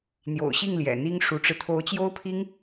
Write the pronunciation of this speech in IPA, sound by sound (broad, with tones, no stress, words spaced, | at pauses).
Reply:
n̪jo̰˨˩ʊ̯ɕi˥˩ŋ ljɛ̰˨˩n̪i˥ŋʂu˧˥ʈ͡ʂɻ̩˧ t̪ʰo˧˥ʊ̯t͡ɕjo˥ʊ̯pʰi˥ŋ